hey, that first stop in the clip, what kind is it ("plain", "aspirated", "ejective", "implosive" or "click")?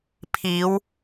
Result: aspirated